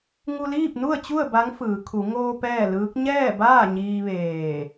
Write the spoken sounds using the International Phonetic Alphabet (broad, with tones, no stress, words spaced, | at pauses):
ŋu˧liː˥˨p̚nu˥˨ə̯t͡ɕu˥˨ə̯ ba˧˥ŋfɯː˩˧ kʰu˩˧ ŋoː˧ pɛː˥˨lɯː˧˥k̚ ɲɛː˥˨baː˥˨ ɲiː˧ʋeː˧˩